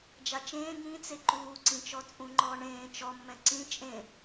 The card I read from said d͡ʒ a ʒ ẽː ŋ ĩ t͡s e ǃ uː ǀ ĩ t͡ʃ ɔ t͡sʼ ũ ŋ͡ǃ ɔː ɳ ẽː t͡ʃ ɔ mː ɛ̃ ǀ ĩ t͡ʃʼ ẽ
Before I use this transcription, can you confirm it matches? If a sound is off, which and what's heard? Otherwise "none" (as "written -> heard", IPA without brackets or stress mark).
ʒ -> t͡ʃ